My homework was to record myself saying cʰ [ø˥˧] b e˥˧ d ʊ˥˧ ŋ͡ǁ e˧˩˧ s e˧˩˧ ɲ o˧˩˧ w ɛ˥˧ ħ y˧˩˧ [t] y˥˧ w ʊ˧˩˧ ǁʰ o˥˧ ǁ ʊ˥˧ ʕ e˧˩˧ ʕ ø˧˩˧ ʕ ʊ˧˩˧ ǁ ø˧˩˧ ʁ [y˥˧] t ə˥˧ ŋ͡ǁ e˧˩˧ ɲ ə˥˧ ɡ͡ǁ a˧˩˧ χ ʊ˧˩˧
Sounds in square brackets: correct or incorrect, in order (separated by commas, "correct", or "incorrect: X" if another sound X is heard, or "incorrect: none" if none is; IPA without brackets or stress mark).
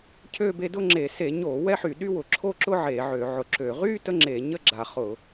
correct, incorrect: ɗ, correct